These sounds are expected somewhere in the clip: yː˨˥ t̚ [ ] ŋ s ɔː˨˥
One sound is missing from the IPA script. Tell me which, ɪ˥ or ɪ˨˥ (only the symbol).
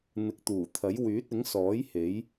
ɪ˨˥